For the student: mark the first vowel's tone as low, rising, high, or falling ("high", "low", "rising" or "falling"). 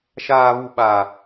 low